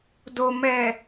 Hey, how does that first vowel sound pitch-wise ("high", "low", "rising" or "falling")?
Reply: low